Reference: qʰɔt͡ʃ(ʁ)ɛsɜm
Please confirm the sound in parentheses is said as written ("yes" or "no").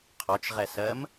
yes